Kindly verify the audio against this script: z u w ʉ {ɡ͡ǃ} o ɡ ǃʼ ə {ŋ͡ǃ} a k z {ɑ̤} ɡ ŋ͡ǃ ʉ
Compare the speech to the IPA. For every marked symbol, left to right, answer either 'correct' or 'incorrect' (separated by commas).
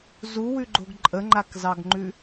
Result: correct, correct, incorrect